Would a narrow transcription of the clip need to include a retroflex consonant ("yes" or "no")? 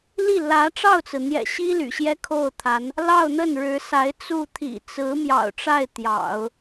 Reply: yes